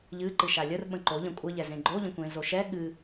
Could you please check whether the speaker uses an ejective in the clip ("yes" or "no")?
yes